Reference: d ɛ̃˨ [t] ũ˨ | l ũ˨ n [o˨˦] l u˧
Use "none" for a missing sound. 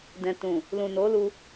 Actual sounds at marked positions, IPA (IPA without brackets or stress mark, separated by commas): t, o˨˦